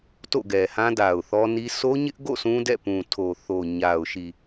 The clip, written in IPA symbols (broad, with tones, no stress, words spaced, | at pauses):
to̰˦˨ɡɛ˨hã˦ da˨ʊ̯θɔ˦ni˦ so˦ɲɪ˦ʔɡo̰˦˨ sũ˦dɛ̰˦˨pũ˨tʰo˨ θo˨ɲa˨ʊ̯ʃi˨